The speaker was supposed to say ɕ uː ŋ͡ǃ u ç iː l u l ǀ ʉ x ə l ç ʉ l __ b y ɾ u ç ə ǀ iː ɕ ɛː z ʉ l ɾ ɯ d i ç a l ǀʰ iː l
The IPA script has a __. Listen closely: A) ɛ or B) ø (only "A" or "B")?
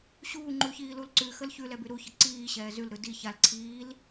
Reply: A